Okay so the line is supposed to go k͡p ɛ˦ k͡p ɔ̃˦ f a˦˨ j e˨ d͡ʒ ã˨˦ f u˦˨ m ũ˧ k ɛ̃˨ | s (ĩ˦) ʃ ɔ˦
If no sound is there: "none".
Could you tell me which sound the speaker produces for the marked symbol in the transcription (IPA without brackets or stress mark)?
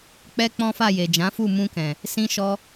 ĩ˦